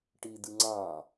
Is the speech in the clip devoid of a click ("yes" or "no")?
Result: no